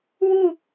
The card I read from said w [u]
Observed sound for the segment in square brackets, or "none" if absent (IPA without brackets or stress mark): u